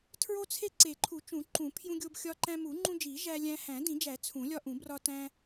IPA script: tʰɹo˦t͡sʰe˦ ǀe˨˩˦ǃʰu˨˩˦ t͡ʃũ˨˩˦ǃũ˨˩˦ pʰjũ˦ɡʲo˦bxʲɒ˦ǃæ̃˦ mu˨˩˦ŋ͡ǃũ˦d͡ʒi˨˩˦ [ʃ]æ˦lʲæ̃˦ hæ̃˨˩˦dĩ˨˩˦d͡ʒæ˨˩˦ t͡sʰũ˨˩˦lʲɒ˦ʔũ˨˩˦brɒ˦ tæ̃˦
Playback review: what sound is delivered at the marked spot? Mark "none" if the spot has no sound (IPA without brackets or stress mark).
ʒ